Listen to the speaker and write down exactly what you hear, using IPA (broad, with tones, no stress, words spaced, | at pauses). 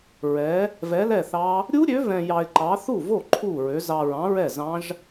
ɹɛ˨˥ | vɛ˨˥lɛ˥˩θɑ˦˥ | ɾʲu˦˥ɾʲø˨˥ vɛ̃˧jɑ˧ɪ̯ǃɑ˨˥ θu˥˩vo˥˩ ǃʰu˥˩ɹø˨˥z ɑ˧ ɹɑ̃˨˥ɹɛ˥˩zɑ̃˦˥ʒ